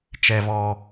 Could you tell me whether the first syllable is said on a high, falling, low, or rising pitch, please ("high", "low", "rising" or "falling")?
high